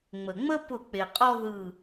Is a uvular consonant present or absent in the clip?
present